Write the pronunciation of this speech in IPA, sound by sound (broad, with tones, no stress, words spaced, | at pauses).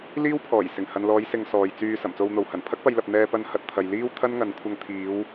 liː˥wpʰɔː˨˩j sɪ˨˩ŋhɐ˨nlɔː˨˧jsɪ˨ŋ sɔː˨jt͡syː˧ sɐ˨˩mt͡so˧wn̪o˨w hɐ˨˩npʰɐ˥k̚pɐ˧j lɐ˧p̚ n̪ɛː˧pɐ˧n hɐ˧t̚t̪ʰɐ˨j liː˥wt̪ʰɐ˥nŋɐ˨nkʷʰɐ˧ŋ t̪ʰiː˨˧w